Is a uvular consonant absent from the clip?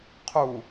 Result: no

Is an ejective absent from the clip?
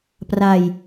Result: yes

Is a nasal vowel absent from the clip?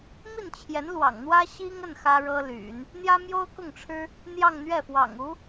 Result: yes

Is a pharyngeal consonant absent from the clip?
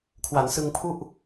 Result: yes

